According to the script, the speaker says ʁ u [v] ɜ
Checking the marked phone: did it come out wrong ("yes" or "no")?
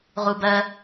yes